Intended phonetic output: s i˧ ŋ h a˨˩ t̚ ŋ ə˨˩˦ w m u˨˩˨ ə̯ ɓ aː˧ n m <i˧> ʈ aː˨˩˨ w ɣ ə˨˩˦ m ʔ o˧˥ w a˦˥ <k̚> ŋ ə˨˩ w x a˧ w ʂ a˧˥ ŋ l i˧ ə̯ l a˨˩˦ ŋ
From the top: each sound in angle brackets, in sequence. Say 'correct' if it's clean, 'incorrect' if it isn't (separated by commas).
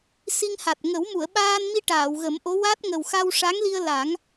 correct, incorrect